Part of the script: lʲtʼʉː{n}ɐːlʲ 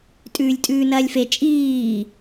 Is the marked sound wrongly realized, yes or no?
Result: no